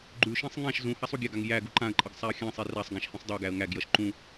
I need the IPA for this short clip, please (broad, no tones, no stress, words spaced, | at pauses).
ɡ͡ǃʉʃĩsˤ ŋãʃ zũhasˤ uɡʲaɡaŋ jæ ɡuǃãə̯ǃʼʌɡ sˤæə̯xʲãsˤi rasˤ ɡæ̃ʃhĩsˤdˤæɡæə̯ ŋæɡjʌʃ ǃũ